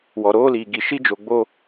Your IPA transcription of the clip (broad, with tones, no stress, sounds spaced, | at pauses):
w ɔ˨ ɾ oː˦ l iː˨ ɡ i˨ ʃ i˦ d͡ʒ o˨ ɡ͡b o˦